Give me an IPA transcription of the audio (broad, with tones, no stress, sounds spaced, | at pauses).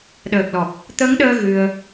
ɗ əː˨˩ k̚ l ɔ˨˩ p̚ | t̪ əː˨˦ ŋ ɗ əː˧ ɣ ɨ˧ ə̯